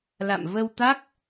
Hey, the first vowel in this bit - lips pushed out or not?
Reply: no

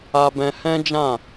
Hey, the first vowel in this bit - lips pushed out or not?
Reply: no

